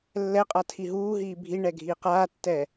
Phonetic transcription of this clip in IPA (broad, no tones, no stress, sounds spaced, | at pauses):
lː ɛ qʼ a tʰ i ɦ uː ɦ iː bʱ i ɳ ɛ ɡʱ iː q aː tː ɛː